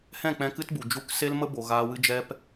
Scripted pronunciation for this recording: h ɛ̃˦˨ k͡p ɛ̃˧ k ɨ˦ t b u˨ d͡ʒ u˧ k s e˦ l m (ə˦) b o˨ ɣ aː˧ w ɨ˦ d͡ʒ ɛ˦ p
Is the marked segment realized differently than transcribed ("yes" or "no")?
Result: no